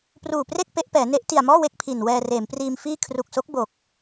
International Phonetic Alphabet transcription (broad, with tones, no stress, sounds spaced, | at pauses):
p r uː˨˩ p r e˥˩ k̚ p e˦˥ ʔ p ɛː˩˦ n e˦˥ ʔ t i˨˩ a̯ m ɔː˥˩ w e˥˩ k̚ pʰ i˨˩ n w ɛː˧ r eː˩˦ m p r iː˧ m f iː˥˩ kʰ r u˨˩ k̚ s o˦˥ k̚ b o˨˩ k̚